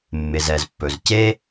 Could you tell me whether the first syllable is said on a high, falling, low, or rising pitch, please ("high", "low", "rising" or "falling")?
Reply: low